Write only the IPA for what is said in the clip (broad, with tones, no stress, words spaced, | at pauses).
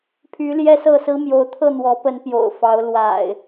pʰy˨˦ ljɛ˦sɤ˥˨sɹ̩˦ mjo˨˦ʊ̯t̪ʰɤ˥˨n̪wɔ˨˦pə˨˦n pjo̰˨˩ʊ̯fɑ˨˦ʊ̯ lwa̰˨˩ɪ̯